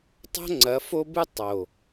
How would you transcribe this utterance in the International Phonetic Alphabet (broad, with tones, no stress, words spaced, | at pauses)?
tˤo̤˦ŋ͡ǀɐ˨˦fo˦bɨ˦ tˤo˨